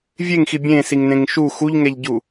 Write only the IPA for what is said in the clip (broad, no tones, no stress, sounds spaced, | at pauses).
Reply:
vʲ e ŋ x i bʲ ẽ s i ŋ n ẽ ŋ ʃ u x u ʎ ŋ ɛ ʎ ɟ u